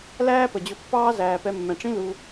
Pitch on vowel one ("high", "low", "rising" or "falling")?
high